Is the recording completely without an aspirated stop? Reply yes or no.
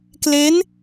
yes